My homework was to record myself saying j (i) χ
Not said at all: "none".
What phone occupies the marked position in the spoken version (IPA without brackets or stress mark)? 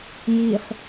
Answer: i